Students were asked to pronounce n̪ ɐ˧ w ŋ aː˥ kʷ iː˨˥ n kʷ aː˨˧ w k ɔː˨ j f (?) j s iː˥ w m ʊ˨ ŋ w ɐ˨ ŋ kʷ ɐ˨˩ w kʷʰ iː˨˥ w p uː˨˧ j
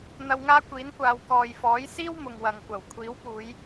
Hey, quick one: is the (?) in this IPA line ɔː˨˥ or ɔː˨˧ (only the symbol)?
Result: ɔː˨˥